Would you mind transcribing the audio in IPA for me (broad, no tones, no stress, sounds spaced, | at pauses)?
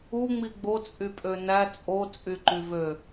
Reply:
u ŋ͡m i ɡ͡b o t͡sʼ y pʼ ø n æ t͡sʼ o t͡sʼ y ǃ y v ø